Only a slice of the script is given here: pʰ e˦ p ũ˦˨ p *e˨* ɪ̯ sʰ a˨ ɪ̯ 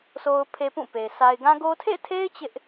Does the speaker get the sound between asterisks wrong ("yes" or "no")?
no